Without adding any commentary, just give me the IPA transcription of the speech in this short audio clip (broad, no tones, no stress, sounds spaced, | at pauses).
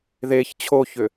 ð e ç t͡ɕʰ o ç ʏ